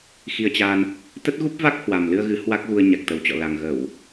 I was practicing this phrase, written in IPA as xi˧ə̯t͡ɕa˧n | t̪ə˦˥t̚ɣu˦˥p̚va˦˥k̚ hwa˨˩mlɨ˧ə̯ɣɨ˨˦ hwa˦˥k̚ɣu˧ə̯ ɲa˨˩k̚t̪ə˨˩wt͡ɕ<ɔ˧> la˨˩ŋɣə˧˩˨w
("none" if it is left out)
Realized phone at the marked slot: ɔ̰˧˨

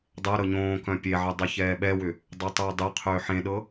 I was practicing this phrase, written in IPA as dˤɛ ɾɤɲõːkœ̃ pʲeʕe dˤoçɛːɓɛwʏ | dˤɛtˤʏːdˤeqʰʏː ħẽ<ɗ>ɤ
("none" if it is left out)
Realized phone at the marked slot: ɗ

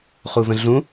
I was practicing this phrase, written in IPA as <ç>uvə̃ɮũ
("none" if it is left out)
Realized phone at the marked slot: χ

